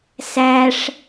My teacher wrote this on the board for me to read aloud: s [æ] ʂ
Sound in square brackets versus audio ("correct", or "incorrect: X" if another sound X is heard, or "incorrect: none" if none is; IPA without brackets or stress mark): correct